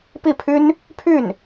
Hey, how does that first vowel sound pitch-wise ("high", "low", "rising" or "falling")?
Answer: falling